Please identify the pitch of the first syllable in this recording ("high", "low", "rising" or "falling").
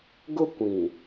high